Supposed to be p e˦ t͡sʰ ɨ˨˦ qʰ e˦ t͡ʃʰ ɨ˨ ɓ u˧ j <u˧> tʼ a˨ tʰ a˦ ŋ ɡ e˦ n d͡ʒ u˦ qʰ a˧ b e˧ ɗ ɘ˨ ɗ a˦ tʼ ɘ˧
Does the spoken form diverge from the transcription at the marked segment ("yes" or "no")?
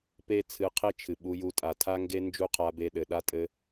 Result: no